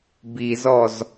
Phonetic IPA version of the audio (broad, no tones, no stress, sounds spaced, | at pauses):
b i z ɔ z